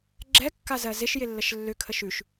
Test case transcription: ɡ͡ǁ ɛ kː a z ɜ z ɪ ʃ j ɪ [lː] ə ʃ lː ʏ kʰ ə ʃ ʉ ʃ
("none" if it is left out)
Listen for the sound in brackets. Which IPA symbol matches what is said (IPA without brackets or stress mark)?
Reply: lː